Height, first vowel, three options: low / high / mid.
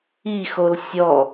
high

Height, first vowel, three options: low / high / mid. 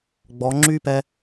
mid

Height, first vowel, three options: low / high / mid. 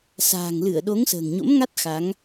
low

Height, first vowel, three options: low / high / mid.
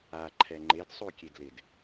low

